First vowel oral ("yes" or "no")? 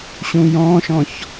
no